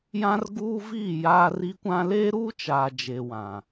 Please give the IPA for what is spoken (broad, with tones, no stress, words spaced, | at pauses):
jã˦rɡuː˦viː˦˨ jaː˦ri˦kʷã˦ leː˦ɾuː˦t͡ʃaː˨d͡ʒe˨ wã˨